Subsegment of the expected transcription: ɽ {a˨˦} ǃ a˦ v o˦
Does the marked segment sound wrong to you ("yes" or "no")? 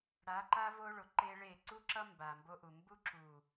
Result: no